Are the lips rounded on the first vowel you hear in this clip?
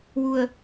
yes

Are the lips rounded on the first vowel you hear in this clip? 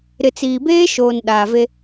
no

